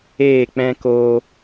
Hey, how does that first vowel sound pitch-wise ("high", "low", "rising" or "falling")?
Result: falling